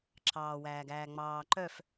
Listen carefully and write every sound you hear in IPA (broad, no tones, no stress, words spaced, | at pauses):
ǁʰɑːwæːɡæː ŋ͡mɑː ǃœf